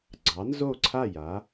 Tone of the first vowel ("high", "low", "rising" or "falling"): rising